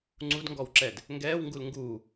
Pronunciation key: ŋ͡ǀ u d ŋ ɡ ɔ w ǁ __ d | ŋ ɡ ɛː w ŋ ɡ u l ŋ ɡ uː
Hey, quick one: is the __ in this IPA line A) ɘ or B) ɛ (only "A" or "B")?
B